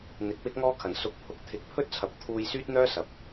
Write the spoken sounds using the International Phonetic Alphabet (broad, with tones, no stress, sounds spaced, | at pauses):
n̪ ɪ˨˥ k̚ w ɪ˥ k̚ ŋ ɔː˥ kʰ ɐ˨˩ n s ʊ˨˥ k̚ pʰ ʊ˨ k̚ t̪ʰ ɪ˨˥ k̚ pʰ ɵ˥ t̚ t͡sʰ ɐ˨ p̚ t̪ʰ uː˧ j s yː˥ t̚ n̪ œː˥ s ɐ˨ p̚